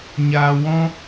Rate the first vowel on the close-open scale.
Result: open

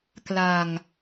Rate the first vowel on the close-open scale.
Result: open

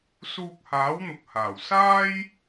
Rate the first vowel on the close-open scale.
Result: close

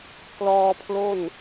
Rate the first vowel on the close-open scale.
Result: mid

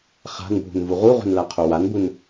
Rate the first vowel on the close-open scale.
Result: open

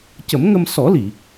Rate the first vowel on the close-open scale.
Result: mid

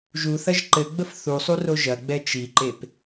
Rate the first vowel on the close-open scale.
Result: close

